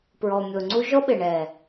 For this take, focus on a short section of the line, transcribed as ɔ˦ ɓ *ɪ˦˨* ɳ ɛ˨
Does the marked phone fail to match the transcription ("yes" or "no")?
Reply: yes